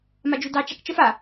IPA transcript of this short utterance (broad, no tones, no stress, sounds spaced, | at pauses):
m a d͡ʒ u d ɑ t͡ʃ a k t͡ʃ ə f a